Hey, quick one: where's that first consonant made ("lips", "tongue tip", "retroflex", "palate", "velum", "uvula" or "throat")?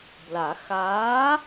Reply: lips